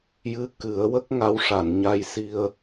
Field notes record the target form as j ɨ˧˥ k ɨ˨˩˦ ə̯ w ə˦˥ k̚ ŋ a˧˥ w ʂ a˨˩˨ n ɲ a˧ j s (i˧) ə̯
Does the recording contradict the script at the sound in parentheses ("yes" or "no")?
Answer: no